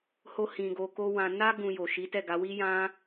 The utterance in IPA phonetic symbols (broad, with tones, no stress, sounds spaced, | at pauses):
h o˦ h ĩ˧ ɡ o˧ k o˦ w ã˧ n a˦ ɡ ũ˧ j o˨ ʃ i˨˦ t ɛ˦˨ ɡ a˨˦ w i˦ j ã˦